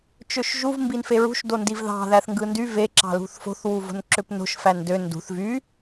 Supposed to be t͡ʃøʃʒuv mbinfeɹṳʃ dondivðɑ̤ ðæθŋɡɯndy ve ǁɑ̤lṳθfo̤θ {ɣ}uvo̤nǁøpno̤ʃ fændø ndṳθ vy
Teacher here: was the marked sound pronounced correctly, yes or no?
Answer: no